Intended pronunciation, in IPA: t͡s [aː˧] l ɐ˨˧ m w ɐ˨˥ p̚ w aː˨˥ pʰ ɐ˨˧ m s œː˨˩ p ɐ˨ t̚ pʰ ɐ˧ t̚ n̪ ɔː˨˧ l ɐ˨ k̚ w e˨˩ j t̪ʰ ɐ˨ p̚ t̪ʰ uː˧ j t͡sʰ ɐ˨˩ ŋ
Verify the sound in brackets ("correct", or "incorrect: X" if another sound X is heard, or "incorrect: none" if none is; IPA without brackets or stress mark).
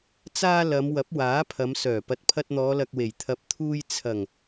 correct